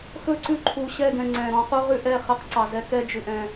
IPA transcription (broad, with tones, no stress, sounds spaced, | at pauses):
x ɵ˦˨ ǀ ʉ˦ ǃʰ u˨ ɕ ɛ˦˨ ɡ ɛ̃˨ ŋ͡ǀ ɛ̃˨ ɾ ɔ̃˦ q u˦ ʁ ʉ˦ ʔ ɛ˦˨ χ ɛ˦ q ǀ ɑ˨ z ɛ˦ k ɛ˦ d͡ʒ ʉ˨ ʔ ɛ̃˦